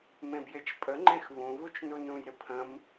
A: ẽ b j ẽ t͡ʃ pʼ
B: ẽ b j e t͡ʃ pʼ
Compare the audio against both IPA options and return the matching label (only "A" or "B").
B